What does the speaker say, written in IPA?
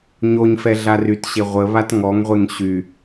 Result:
ɲoɲfɛ ɮarytɕe ʁʷəβat ŋɔŋʁʷeŋ ɕy

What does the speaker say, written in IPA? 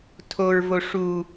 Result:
tʰoɹvo ʂu

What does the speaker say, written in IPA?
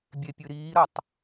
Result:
bʲepʲɨɾiːɾʌtˤ

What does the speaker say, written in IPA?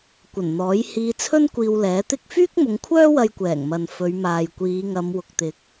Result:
kʷɐ˨˩nn̪ɔː˨˥jhiː˧ t͡sʰɵ˥nkʷiː˧wlɛː˨˥t̪ɪ˥k̚ fyː˥k̚mʊ˨˧ŋkʷʰœː˥wɐ˧j kʷɛː˨˩ŋmɐ˨n fɵ˨˧ɥ maː˨jkʷiː˨˧ŋɐ˨˧m wʊ˨k̚t̪ɪ˨˥k̚

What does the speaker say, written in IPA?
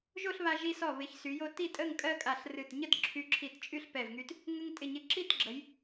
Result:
ʒo˥˧ɬβa˧ʒi˧sɔ˧˩ βɪ˩˧ç sy˩˧jo˧ ti˥˧tʼə˥˧ŋ kʼɜ˥kʼa˧˩ɬrɨ˧˩t ɲə˥˧tǁʰy˧ǁʰi˧˩tt͡ʃʼy˥˧ɬ pɛ˧˩vŋy˧t | ŋə˥ŋ tʼɪ˧˩ɲɪ˧ ǁi˥˧tɡ͡ǁə˩˧j

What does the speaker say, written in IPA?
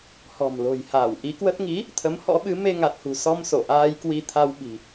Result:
hɔ̤˨˩mlo̤˨˩j haː˧˩wʔi˨˦kwə˦˥t̚ ŋi˨˦ | t̪ʰə˨˦mhɔ̰˧˥ɓɨ˨˦ me˧ŋa˨˩t̚hṳ˨˩sɔ˧m so˧˩ʔaː˧j kwi˧t̪ʰa˧wɓi̤˨˩

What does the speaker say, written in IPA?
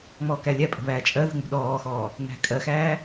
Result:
ŋ͡mɔːkælʲæpʼə̤ βæːt͡ʃʼɜðə̤ ŋ͡mṳɗɔːxɔː | n̪æ̤kʼɜxæː

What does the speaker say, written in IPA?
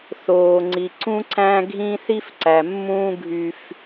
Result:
θoː˨ŋ͡ǀi˨ ǀũ˦ǀæ̃˦ ɡʱĩ˦ θi˦fǀæ˨mːũː˦ ɡʱy˦f

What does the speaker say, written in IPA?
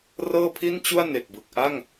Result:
rɤː˥˩pʰi˥˩nt͡ɕu˥˩a̯ ne˨˩k̚bɯ˨˩k̚ ʔa˥˩ŋ

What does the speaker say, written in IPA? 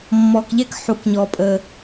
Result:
mːɔː˨kʎɛ˥k ħu˨kɲɔ˨pʼəː˨

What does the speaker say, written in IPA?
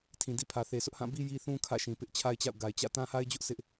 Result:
tʰĩ˨dḭ˦˨pʰä˨ θe˨sʰʊ˦ʔhã˦˨bi˦ ji˦θũ˦ kʰä̰˦˨ʃĩ˨ pɪ˦ʔt͡ɕʰa˦ɪ̯t͡ɕa̰˦˨ʊ̯ ɡa˨ɪ̯ t͡ɕä̰˦˨ tã˦ha˦ɪ̯d͡ʑʊ˦ʔ sʰɪ˦ʔ

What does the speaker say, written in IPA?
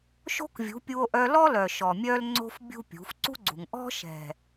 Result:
ʃo̤˦kvʲṳ˨˦pʲu˧o̯ ʔœ˧lɔ˦lœ˨ ʃɔ˨mʲœ˦lŋ͡ǀo̤˦f bʲṳ˦pʲṳ˨˦f ǀṳ˦ɡ͡ǀṳ˨ŋ ʔɔ̤˦ ʃɛ̤˨

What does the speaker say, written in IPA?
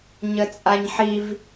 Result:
ɲət͡sʼaɲħiv

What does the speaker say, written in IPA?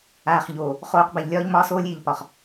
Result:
aː˨χʎoː˨ | χoː˨q ba˨ʎlʲɒː˦ʎmɒː˦soː˦lʲ iː˨ʎpɒ˨χ

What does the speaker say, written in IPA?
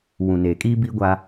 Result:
wũ˨neː˨kʼiː˦ biː˦ɡʷa˦

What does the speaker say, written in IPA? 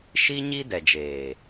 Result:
ʃi˦ɲi˦ dɛ˨d͡ʒeː˨

